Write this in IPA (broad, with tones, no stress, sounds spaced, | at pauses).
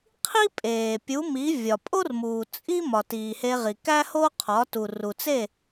qʰ i˥ pʼ eː˩ pʲ u˩˥ m i˩˥ vʲ ɒ˩ pʼ o˥ r m uː˩ t͡sʼ i˥ m ɒ˩ t iː˩ h e˧ ʁ i˩ k æ˥ h o˥ qʰ ɒ˩˥ t u˩ r u˩ t͡s e˥˩